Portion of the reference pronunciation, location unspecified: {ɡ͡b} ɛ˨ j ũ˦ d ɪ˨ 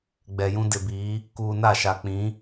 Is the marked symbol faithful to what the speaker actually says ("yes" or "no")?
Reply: yes